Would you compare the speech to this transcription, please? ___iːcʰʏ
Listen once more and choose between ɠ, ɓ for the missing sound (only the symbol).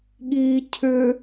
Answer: ɠ